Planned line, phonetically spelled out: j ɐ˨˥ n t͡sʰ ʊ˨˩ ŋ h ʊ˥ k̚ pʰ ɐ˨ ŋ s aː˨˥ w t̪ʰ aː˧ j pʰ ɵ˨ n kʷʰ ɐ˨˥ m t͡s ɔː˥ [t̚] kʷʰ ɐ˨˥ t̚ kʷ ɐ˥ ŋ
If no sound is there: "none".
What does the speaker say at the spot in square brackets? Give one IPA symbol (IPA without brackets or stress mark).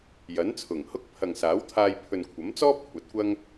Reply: p̚